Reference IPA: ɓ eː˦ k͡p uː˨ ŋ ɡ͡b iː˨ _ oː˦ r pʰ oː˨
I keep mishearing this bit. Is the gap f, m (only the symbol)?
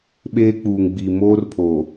m